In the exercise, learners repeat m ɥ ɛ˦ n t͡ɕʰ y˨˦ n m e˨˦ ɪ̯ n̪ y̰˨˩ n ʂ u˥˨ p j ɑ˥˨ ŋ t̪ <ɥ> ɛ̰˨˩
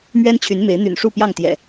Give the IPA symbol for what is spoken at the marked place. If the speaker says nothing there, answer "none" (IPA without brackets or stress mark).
j